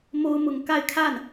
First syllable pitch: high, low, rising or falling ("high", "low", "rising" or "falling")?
high